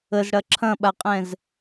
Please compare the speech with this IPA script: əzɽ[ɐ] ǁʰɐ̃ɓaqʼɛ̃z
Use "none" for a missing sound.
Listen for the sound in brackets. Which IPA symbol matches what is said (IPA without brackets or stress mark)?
ɐ